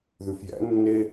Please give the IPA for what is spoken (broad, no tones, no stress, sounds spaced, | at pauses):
ð ʉ f j æ̰ nː e